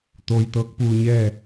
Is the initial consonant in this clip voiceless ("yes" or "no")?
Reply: yes